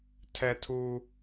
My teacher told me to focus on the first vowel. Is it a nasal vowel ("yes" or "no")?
no